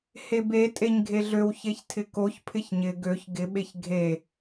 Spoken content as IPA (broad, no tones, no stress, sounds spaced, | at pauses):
h e b e tʼ e ɲ ɡʱ e ɮ ø w ç e ç tʰ ɪ k o ç pʰ ɪ ç ɲ ɪ ɡ ø ç ɡ ɪ ɓ e ç ɡʱ e